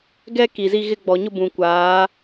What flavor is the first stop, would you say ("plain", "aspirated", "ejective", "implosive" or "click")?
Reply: plain